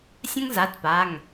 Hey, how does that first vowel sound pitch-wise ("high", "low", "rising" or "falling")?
high